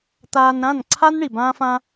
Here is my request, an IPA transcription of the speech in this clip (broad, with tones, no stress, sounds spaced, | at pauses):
t̪ aː˧ n ɾ ã˦˨ n ǀʰ a˦ n ɳ i˨ b ãː˦ f ã˦